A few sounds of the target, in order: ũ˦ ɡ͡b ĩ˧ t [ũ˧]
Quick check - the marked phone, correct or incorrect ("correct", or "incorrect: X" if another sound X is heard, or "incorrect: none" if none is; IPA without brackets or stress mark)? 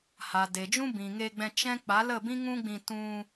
correct